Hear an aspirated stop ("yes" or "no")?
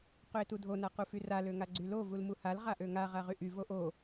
no